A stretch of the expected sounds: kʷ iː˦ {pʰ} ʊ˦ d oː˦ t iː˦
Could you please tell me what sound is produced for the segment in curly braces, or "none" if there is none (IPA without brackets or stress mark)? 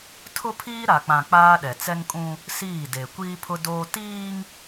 pʰ